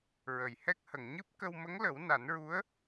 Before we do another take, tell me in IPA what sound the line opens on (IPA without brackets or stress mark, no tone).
ɹ